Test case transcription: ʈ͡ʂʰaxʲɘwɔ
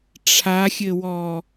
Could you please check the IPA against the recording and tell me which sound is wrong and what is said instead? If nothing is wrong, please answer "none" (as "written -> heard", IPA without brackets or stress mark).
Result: none